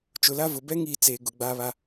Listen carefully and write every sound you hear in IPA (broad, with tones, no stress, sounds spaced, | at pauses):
t͡ʃ ʊ˨ l a˦ v ʊ˨ b ɛ˦ ŋ i˨ t͡s eː˨ ɡ ʊ˨ ɡ͡b aː˦ β a˦